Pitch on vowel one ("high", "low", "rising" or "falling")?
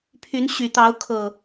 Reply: rising